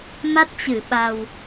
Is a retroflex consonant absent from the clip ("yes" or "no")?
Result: yes